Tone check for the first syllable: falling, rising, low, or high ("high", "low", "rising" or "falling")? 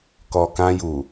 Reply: low